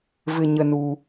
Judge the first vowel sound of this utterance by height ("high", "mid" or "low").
high